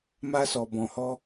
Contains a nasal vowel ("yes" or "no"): yes